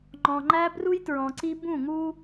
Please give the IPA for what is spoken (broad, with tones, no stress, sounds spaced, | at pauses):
ŋ͡ǃ ɔ̃˨ ŋ͡ǃ æ˦ b r u˦ j t ɹ ɔ̃˨ ǀ i˦ b ũ˦˨ ŋ u˦